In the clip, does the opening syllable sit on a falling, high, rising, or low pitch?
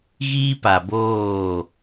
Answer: high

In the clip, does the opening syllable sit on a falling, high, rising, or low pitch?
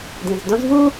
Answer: low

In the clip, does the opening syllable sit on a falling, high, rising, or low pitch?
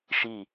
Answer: falling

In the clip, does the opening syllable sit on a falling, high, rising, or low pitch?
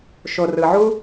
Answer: low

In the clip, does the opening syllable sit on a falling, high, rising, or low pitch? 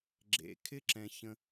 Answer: low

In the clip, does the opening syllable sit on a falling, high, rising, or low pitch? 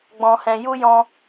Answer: low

